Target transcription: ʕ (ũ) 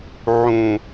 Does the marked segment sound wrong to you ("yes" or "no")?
no